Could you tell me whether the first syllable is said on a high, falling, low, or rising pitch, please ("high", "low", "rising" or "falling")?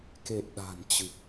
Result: low